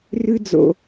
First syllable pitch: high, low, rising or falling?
high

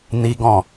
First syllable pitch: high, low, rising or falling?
high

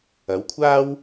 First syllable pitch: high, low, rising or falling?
rising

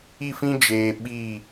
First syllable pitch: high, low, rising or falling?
falling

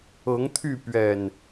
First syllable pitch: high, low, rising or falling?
rising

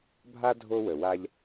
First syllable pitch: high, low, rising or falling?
high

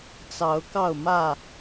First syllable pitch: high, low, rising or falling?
rising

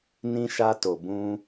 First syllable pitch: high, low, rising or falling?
high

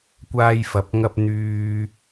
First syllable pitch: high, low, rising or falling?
high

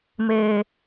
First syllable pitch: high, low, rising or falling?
low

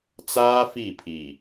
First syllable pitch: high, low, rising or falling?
high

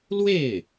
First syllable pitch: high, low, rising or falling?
falling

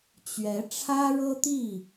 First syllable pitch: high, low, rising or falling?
rising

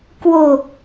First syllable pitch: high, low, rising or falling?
low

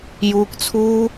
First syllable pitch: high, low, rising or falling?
high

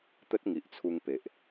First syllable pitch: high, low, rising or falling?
high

